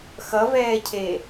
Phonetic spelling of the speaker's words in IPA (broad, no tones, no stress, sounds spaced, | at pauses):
x ʌ v ɛː cʰ e